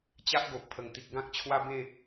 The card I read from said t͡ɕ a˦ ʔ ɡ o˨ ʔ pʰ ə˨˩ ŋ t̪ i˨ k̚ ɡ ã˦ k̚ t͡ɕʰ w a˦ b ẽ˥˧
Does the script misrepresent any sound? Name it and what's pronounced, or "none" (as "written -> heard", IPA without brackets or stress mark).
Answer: none